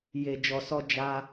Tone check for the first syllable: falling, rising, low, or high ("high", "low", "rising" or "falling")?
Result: low